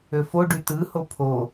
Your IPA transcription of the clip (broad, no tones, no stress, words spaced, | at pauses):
øfo ɖytɯho pʰo